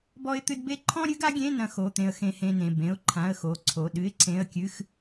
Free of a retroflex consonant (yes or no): yes